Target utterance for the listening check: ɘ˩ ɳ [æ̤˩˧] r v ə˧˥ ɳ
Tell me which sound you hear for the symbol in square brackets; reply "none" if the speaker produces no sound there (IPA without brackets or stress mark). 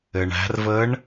æ̤˩˧